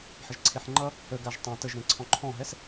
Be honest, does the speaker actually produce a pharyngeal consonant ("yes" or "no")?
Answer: yes